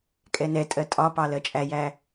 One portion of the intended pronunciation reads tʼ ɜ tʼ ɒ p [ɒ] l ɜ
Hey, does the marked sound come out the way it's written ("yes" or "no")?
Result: no